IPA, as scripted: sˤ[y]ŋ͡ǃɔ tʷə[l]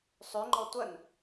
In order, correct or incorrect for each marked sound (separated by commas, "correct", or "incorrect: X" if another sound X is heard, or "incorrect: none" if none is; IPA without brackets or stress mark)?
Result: correct, incorrect: n